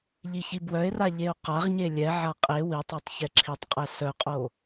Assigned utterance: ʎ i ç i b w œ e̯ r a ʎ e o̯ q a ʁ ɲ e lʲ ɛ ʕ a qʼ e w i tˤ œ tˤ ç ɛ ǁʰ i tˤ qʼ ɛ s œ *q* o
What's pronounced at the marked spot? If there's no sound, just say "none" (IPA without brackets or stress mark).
qʼ